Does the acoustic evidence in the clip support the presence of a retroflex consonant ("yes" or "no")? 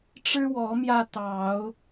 yes